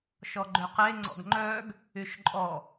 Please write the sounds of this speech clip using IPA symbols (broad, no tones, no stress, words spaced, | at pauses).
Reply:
ʃɔɡ͡ǃøqe ŋ͡ǀɔ̰ɡŋ͡ǃœɡ | yʃǃʼɔ